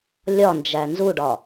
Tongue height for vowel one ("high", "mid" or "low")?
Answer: low